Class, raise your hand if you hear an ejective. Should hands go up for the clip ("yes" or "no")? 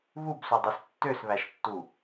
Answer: no